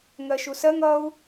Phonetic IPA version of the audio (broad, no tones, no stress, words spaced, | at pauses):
ŋɜʃusɜŋ ʌu̯